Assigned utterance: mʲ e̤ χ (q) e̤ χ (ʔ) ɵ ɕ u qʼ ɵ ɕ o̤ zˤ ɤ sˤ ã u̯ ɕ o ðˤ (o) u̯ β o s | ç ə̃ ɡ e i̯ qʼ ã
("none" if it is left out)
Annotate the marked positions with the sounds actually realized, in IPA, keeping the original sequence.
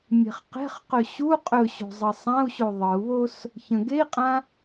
q, q, ɤ

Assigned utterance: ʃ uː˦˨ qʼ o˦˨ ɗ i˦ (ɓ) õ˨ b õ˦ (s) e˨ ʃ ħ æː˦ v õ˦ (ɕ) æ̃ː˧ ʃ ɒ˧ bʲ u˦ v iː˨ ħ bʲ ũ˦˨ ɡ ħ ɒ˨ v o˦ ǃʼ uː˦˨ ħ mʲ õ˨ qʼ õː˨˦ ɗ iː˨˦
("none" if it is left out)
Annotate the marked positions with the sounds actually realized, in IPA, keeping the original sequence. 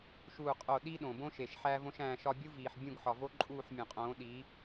ɗ, ʃ, ʃ

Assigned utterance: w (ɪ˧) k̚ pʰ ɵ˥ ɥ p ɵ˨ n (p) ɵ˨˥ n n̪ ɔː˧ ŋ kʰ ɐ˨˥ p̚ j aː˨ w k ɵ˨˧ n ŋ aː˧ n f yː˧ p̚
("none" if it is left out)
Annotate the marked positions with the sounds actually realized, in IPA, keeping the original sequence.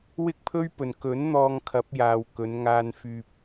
ɪ˥, k

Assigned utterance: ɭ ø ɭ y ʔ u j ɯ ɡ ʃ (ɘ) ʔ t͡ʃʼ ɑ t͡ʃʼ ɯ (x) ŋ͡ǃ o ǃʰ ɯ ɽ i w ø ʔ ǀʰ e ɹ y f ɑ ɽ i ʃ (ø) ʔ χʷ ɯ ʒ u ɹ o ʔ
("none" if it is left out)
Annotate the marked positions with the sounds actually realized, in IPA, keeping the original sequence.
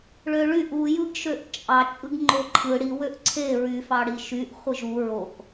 ø, ɡ, y

